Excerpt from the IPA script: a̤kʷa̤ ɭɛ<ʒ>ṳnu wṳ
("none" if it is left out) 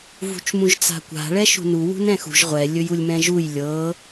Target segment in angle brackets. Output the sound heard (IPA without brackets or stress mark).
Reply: ʃ